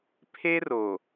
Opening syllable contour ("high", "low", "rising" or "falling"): high